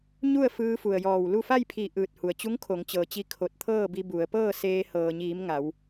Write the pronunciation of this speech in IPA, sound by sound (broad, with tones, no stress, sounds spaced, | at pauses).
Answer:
ɲ u˥˨ ə̯ f ɯː˧ f u˩ ə̯ j ɔː˧˩ w l u˥˨ f a˥˨ j pʰ i˧˩ ʔ ɯː˧˩ t̚ h u˩ ə̯ t͡ɕ u˧˥ ŋ kʰ o˩˧ ŋ t͡ɕ ɤː˩ t͡ɕ i˧ kʰ o˧˩ t̚ t̪ʰ ɤː˥˨ b i˧ b u˩˧ ə̯ p ɤː˥˨ s eː˧ h ɤː˩ ɲ iː˩˧ m ŋ a˩˧ w